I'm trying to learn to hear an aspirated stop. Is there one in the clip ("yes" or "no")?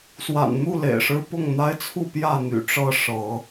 yes